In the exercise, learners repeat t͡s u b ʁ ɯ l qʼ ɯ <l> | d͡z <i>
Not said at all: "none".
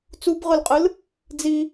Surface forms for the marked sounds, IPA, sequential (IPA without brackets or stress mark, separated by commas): l, i